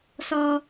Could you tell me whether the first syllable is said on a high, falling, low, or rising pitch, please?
low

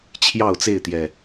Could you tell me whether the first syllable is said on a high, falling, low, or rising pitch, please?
falling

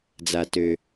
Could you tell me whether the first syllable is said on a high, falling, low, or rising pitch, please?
low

